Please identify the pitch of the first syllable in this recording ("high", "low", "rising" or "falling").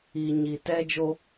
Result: low